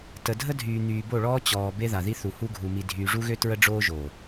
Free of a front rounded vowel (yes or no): no